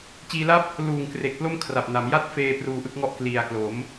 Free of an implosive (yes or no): yes